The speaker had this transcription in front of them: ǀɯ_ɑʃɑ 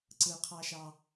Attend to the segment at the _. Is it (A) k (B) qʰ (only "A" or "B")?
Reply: B